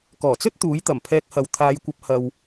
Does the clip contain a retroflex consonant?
no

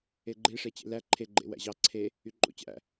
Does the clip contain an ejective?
yes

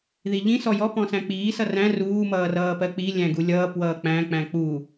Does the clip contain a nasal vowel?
yes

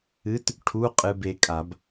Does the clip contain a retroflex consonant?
yes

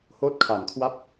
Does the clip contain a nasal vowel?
no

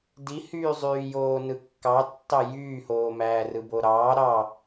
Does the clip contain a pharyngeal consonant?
no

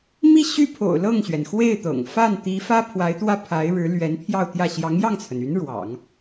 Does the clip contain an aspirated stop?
yes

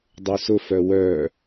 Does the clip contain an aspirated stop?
no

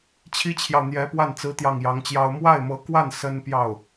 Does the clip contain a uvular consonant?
no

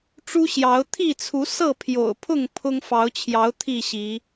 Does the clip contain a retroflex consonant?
yes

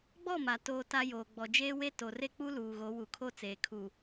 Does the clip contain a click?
no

